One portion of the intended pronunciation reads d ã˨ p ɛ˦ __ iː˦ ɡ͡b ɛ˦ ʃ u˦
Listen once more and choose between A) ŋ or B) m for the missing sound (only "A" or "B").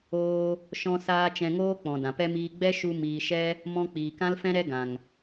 B